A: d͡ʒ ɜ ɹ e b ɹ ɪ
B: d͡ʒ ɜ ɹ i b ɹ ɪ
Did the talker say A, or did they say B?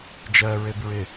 A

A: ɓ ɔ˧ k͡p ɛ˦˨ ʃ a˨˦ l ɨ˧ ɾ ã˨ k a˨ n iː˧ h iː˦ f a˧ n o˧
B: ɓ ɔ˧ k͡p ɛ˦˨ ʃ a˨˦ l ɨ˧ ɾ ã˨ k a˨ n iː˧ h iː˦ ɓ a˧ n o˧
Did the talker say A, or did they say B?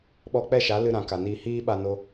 B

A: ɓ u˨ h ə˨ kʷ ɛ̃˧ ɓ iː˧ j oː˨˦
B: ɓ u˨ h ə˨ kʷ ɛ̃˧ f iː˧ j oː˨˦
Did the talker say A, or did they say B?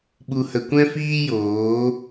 B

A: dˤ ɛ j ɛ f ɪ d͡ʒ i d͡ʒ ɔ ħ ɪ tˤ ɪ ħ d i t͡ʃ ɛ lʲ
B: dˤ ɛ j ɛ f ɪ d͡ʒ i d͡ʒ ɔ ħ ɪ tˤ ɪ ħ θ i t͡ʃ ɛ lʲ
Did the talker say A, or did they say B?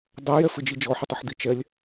A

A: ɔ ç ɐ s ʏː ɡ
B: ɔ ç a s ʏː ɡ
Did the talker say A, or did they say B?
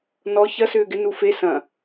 A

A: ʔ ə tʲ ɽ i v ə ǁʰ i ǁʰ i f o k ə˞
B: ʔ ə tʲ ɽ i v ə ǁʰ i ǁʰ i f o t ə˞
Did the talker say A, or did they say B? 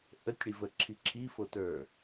B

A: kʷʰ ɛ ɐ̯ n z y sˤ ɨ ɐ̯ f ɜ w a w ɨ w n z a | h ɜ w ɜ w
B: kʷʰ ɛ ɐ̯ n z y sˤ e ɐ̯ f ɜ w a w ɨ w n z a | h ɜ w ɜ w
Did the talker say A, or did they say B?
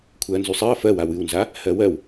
A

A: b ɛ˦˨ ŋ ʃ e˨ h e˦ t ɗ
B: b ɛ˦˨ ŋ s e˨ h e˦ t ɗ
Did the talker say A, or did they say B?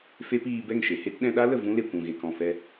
A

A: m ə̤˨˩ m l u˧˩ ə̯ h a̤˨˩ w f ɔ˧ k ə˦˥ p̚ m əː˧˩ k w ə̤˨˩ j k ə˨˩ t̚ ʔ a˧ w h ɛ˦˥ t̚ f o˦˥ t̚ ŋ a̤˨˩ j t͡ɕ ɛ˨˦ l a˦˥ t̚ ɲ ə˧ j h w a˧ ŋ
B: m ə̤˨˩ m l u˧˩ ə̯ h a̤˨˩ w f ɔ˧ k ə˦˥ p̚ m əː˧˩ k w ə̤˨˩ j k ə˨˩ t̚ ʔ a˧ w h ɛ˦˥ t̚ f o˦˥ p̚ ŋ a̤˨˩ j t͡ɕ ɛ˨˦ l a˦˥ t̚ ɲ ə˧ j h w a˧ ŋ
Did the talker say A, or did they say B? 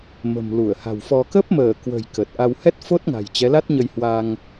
A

